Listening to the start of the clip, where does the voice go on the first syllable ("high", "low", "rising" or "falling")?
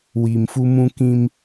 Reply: low